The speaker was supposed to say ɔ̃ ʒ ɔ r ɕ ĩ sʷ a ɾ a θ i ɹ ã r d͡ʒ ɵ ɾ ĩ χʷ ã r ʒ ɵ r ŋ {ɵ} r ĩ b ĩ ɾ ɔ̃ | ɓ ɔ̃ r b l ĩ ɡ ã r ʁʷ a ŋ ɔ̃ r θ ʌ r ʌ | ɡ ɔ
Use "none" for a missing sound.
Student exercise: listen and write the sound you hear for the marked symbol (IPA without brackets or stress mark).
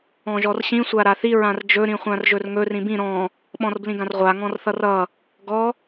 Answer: ɵ